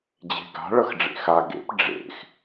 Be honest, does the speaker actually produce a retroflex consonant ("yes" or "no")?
yes